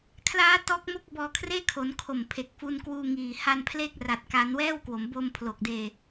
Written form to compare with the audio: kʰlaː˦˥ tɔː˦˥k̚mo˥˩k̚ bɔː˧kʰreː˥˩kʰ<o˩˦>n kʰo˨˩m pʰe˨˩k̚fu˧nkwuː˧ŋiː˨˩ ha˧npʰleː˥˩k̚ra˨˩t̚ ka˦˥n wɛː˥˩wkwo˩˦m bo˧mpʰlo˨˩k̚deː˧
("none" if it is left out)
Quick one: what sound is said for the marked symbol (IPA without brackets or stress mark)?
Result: o˩˦